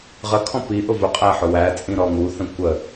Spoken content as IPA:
ʁ ə kʰ ɔ̃ p i ʔ ʊ v ʊ qʼ æ ħ ʊ w æ t͡sʼ ĩ ɾ ɔ ŋ u θ ə̃ kʷ ə

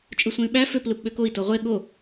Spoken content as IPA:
t͡ʃʼ ɯ sʷ ẽ y̯ ɓ æ f ø p l ɯ p ɓ ø k o i̯ t o ʁʷ e ɠ o

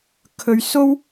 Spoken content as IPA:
kʰ ɵ˨ ɥ s o˥ w

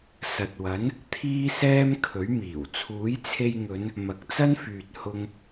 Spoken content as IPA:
s ɐ˨ t̚ w ɐ˨˥ n | t̪ʰ iː˥ s ɛː˥ m kʰ ɵ˨˥ ɥ m iː˨˩ w t͡sʰ uː˨˥ j t͡sʰ e˧ j ŋ ɵ˨˧ n | m ɐ˨ k̚ t͡s ɐ˥ n f yː˨ t̚ h ʊ˧ ŋ

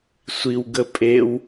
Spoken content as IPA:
sʷ i w ɡ ə pʼ e w

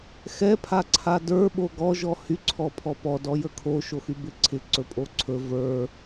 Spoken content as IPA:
x ɛ pʰ a ǀʰ a d ə˞ ɓ o ɡ ɔ ʒ ɔ h y ǀʰ ɔ pʰ ɔ p ɔ d ɔ j ə kʰ o ʃ o x y b ɪ ǀʰ ɪ ǀ ɵ pʼ o ǀʰ ɵ v ə˞

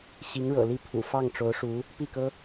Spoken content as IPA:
ɕ i˧˥ ŋ ɻ ɤ̰˨˩ l i˥˩ pʰ ṵ˨˩ f ɑ˥˩ ŋ ʈ͡ʂ o˧˥ ʊ̯ ʂ u˧˥ | p i˥˩ k ɤ˥

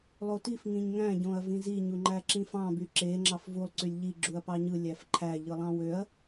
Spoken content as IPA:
lˠ o t i f ŋ ĩ ɲ ŋ æ̃ ɟ õ ɐ̯ v ĩ z i ɲ u ŋ͡ǃ æ ǁ ĩ f ɑ̃ b y ǁ e ŋ͡ǁ ɑ f v u lˠ ǀ y lʲ ʎ i ɡ͡ǁ u ɐ̯ p ɑ ɲ ɯ lʲ æ f ǃʰ æ ʎ ɯ lˠ ɑ̃ w ø ɐ̯

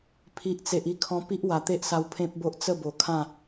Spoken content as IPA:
pʰ i˨ ʔ t͡s e˨ ʔ i˧ kʰ ɔ̃˧ p i˦ ʔ w a˨˩ t̪ e˦ ʔ s a˧ w pʰ ẽ˦ p̚ b o˦ ʔ t͡s ə˥˧ b o˨˩ kʰ ã˥˧

